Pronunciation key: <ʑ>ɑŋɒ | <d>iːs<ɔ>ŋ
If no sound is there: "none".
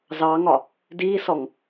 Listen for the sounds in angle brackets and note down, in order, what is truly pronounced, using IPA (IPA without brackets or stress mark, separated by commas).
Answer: z, d, ɔ